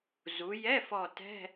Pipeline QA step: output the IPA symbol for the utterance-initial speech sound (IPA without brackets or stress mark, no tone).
z